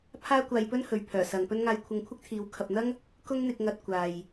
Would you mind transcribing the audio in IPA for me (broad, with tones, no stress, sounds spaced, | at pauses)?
pʰ aː˥ kʷ aː˧ j p ɵ˥ n h ɵ˨ ɥ pʰ œː˨˩ s ɐ˨ ŋ p ɵ˥ n ŋ aː˧ j kʷʰ ɐ˧ ŋ kʷʰ ɪ˥ k̚ t̪ʰ iː˨˧ w kʰ ɐ˨ p̚ n̪ ɐ˥ ŋ | k ʊ˥ ŋ n̪ ɪ˧ k̚ ŋ ɐ˧ t̚ kʷ aː˨ j